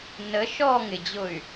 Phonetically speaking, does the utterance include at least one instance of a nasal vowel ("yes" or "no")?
no